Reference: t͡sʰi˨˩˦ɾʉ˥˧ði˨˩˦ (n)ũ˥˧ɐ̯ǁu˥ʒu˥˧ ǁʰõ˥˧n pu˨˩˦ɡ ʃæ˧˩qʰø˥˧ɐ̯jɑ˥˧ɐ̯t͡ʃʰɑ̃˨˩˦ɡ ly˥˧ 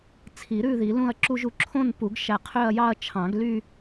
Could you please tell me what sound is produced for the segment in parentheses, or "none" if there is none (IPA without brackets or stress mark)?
l